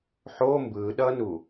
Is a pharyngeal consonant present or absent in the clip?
present